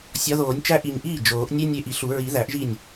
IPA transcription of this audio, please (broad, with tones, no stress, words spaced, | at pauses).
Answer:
sʲɒ˨˦ðoː˨˩˦nʲt͡ʃæ˦ ʔi˨˩ɲʔiː˥˩ d͡ʒoː˨˩˦ʔ nʲe˦ nʲe˦ʔi˨˩˦ɬu˨˩˦ ɹi˨˩˦ðæ˨˩˦ʔʒi˥˩nʲ